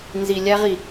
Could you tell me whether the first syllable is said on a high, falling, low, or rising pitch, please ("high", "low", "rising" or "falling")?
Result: low